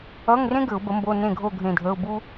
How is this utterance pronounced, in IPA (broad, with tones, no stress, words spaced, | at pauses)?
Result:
ʌ˧˥˧ŋrẽ˥ ɡɘ˨˩˦ʊ̯bə˨˥mbo˧˥˧ nẽ˦˨ɡʱo˦˨ ɡʱẽ˦˨dʱəː˧˥˧ʊ̯ bu˥